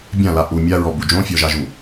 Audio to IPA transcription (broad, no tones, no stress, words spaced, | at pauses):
bʲãla ʔu mʲaɹɔbu d͡ʒõfʲɔʒaʒu